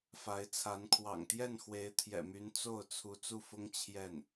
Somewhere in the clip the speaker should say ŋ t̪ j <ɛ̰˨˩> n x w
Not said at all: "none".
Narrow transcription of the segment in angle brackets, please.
ɛ˥˩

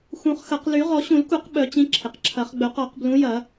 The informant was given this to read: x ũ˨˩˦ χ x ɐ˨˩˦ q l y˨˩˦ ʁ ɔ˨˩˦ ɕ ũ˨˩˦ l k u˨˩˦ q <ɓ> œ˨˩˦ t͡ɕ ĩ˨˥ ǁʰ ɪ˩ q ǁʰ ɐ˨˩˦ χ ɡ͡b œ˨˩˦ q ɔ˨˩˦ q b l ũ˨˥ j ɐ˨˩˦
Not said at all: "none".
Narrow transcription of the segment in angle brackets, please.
ɓ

